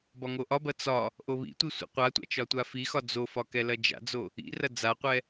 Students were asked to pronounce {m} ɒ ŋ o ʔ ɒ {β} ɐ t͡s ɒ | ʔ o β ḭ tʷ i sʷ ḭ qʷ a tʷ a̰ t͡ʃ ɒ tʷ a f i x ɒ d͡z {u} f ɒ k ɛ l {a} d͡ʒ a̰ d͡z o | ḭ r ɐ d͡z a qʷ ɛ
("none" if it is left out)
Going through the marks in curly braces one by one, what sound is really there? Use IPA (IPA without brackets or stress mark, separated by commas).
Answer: b, b, o, ɐ